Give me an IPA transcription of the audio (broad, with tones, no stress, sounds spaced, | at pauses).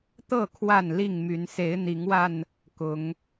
t̪ ɤ˥˨ kʰ w a˥˨ n l i˥˨ ŋ m y˨˦ n s e˨˦ ɪ̯ n̪ i˨˦ ŋ w a˧ n | k ʊ˨˦ ŋ